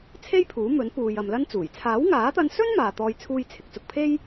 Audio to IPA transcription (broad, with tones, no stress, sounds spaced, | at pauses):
t͡sʰ e˥ j pʰ uː˨˥ m ɵ˨˥ n p uː˨ j ɐ˨ m l ɐ˥ n t͡s uː˨˩ j t͡sʰ aː˨˥ w ŋ aː˨˥ t̪ ɐ˧ n s ɵ˥ n m aː˨ t̪ ɔː˧ j t͡sʰ uː˥ j t͡sʰ ɪ˧ k̚ t͡s ʊ˧ k̚ pʰ e˥ j